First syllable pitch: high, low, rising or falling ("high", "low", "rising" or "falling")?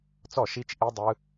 falling